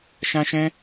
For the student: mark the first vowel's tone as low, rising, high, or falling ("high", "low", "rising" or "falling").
high